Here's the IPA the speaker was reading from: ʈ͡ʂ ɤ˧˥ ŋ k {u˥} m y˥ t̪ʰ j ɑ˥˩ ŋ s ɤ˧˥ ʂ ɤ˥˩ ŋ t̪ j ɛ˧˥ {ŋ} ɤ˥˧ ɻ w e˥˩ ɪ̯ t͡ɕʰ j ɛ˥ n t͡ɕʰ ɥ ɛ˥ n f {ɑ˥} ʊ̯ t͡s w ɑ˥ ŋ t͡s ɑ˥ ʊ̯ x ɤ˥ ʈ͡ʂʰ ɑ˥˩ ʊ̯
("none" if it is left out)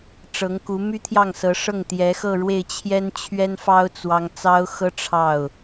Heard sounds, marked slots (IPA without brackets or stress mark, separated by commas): u˧˥, x, ɑ˥